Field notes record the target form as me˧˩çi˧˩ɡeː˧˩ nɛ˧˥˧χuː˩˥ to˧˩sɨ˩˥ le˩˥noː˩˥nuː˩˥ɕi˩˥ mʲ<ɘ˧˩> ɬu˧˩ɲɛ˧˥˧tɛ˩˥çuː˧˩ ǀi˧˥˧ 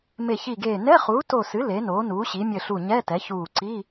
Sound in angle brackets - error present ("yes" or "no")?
no